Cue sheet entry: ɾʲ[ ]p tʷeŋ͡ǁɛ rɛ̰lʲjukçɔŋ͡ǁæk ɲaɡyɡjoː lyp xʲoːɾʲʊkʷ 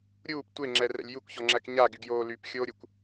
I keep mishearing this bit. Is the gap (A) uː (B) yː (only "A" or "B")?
A